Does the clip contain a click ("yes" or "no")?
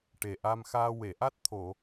no